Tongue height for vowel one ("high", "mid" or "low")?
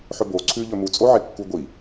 mid